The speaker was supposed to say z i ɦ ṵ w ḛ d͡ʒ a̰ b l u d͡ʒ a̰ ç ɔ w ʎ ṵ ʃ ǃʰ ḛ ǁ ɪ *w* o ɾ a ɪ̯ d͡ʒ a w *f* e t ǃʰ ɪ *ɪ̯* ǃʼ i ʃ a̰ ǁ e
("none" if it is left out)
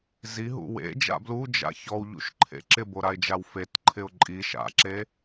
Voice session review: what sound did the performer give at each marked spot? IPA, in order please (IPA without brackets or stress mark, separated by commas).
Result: b, f, ʊ̯